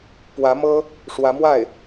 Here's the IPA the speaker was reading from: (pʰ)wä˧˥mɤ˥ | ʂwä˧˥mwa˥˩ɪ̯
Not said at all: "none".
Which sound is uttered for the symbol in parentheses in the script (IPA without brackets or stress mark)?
p